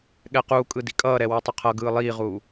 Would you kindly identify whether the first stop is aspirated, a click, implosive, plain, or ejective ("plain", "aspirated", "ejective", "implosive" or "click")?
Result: implosive